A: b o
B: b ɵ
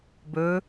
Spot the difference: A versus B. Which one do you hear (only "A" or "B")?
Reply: B